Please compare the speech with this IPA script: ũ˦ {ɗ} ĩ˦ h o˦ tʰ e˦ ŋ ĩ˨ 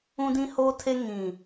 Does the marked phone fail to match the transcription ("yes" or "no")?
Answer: yes